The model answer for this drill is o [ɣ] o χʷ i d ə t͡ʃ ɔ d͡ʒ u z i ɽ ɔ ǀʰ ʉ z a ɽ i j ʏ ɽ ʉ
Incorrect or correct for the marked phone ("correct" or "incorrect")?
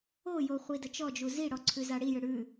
incorrect